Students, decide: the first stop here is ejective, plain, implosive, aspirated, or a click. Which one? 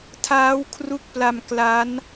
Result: aspirated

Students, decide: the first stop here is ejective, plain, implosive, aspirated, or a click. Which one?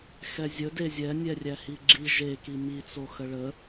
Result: plain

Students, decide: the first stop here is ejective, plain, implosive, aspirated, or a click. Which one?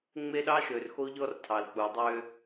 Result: implosive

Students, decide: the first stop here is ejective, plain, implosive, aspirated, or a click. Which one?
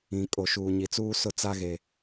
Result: ejective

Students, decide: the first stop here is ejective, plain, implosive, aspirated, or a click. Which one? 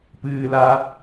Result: plain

